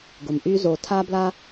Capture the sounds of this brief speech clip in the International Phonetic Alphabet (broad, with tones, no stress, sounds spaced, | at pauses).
ɡ ʊ˨ m ʔ y˦ z o˧ tʰ a˦ b l a˦